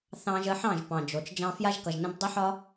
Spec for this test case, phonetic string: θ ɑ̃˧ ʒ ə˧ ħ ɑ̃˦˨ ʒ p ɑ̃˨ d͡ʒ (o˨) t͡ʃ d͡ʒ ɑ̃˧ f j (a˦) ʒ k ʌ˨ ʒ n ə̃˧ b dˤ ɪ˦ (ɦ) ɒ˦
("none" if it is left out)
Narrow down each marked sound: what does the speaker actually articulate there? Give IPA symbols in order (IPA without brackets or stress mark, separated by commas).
o˨, a˦, ħ